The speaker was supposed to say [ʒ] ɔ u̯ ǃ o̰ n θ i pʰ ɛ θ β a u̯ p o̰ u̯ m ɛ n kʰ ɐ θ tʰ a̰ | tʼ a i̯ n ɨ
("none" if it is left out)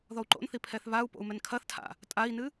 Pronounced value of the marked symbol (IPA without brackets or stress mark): ð